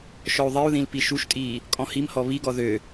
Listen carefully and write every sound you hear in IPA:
ʃ ɔ u̯ ðˤ i u̯ ð ĩ l p i ʃ u ʃ tʼ iː | kʼ ɔ̃ h i m h ɔ β i ɡ ɔ ð ø

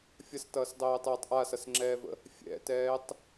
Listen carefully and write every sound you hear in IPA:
fʲ ɐ s t ʌː s dˤ ɛː tˤ ɛː tˤ ʔ a s ʌ s ŋ͡ǁ ɛː v ə̰ | fʲ ɛ̰ t ɛː tˤ

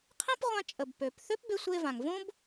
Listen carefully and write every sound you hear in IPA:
qʰ ẽ˥ p ʁʷ ã˧ t͡ʃʼ ə˩ b p ø˩ p θ ø˥ p b e˧ sʷ e˧ v ã˩ ŋ v õ˥ b

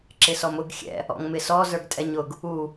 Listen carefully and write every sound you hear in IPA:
ǁ ɪ s ɔ m ʊ ɡ xʲ ɛ̰ | ɔ̰ ŋ m ɪ s ɔ z ə˞ ɡ tʼ ɛ ɲ ʊ ɡ | u

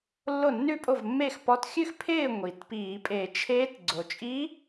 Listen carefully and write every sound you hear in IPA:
lː o˥˩ nː ʉ˥˧ pʼ o˥˩ v mː eː˥˩ x p ɔ˧˥ t xʲ ʉ˥˧ x pʰ ɪː˥˩ ŋʷ iː˩ t p iː˧˩˧ pʼ e˧˩˧ t͡ʃʰ eː˧˥ t ɡ͡ǀ o˩ t͡ʃʼ i˧˥

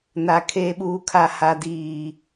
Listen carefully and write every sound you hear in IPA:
n a˨ kʰ eː˨ ɓ uː˨ kʰ a˨ h a˨ d iː˨

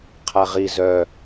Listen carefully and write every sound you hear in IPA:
qʰ a ʁ i z œ

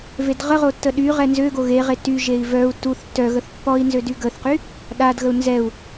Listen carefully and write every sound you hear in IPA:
v e d ʁ ə ʁ o tː ə ɗ y ʁ ɛ n z ø ɡ o ɣ e ʁ e t y ʒ e i̯ v œ u̯ t u θ tː œ ɣ ə θ pː ɔ i̯ n z ø d y ɡ ə θ q y | ɗ a d ɣ ə u̯ n z ɛ u̯

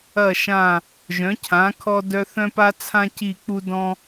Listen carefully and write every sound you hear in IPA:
ɐ˥˧ ʃ ã˥˧ | ʒ œ̃˨˥ cʰ ã˨˥ kʰ ɔ˥ d œ˥ θ œ̃˥ p a˥ t͡sʰ ã˥ c i˥˧ k͡p u˥ d ɔ̃˥

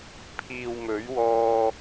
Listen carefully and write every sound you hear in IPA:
pʰ iː˨ w m ɵ˨˥ ɥ w ɔː˧

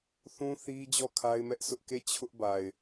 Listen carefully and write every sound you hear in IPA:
θ ũ˦ θ i˦ d͡ʑ ɔ˦˨ kʰ a˦ ɪ̯ m ɛ˦ ʔ sʰ ʊ˦ ʔ k e˦˨ t͡ɕʰ ʊ˦ ʔ b a˨ ɪ̯

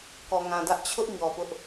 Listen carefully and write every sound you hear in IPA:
k ɔ˨ ŋ ã˨ d ä˦ ʔ t͡ɕʰ ʊ˦ ʔ ɲ ɔ˨ p ʊ˦ ʔ

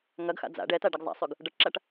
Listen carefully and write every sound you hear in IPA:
ŋ ɐ ɡ x a̰ d͡z a̰ ɖ ɛ t a ɖ ɐ ɡ zˤ a̰ sˤ ʉ ɡ | ɖ ɐ ʈ ǁ a ʈ

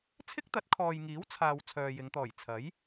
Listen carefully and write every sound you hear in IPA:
t͡sʰ ɪ˥ k̚ t̪ ɐ˨˥ t̚ kʰ ɔː˨ j ŋ iː˨˥ w t͡sʰ aː˨ w t͡sʰ œː˨ j ɪ˨˧ ŋ t̪ ɔː˨˩ j t͡sʰ ɐ˨˥ j

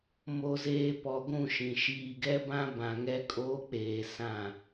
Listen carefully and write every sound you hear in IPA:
m o˨ z eː˨ p ɔ˨ ɡʷ ũ˦˨ ʃ ĩ˨ ʃ iː˨ ɡ ɛ˦ b ã˦ b ã˨ ŋ ɛ˦ kʼ oː˦ k͡p eː˨ s ã˦˨

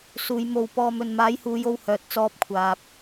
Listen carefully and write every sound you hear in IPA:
s uː˨˧ j m o˧ w p ɔː˧ m ɵ˨ n m aː˨˥ j h uː˨˧ j o˧ w h œː˨ t̚ t͡s ɔː˧ p̚ kʷʰ aː˨ p̚

